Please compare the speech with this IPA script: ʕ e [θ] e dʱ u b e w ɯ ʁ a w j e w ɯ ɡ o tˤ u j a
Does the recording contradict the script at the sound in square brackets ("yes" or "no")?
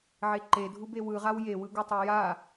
yes